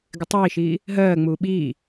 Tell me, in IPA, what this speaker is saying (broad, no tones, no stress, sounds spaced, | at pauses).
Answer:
ɡ ɪ tˤ iː ʃ iː | ɦ ɜː ŋ͡m uː ɓ iː